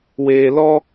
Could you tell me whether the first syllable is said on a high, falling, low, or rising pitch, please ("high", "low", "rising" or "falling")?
low